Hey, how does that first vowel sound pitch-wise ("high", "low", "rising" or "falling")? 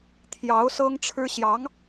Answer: rising